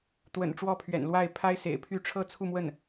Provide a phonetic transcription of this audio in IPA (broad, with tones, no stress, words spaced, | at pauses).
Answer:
t̪wə̰˨˩n ʈ͡ʂwɔ˥˩pʰɥɛ̰˨˩nlwa˥˩ɪ̯ pʰa˥ɪ̯sḛ˨˩ɪ̯pʰy˥˧ ʈ͡ʂʰɤ˥˧t͡sʰu˥˧mwə˥˩n